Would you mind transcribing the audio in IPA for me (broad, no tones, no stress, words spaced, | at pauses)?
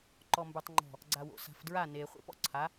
ǃɔmbə˞tˤŋ͡ǃɔ̤ | ɡ͡ǀawo̰sa̤fdɹa ne χʷḛpɔ̰ǀʰa